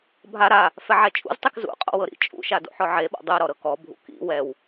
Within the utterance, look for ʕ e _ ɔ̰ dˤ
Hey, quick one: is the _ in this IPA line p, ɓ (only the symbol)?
ɓ